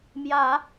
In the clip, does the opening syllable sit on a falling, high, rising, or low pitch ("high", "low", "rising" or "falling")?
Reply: low